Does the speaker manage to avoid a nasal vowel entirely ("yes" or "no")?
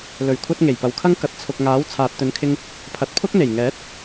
yes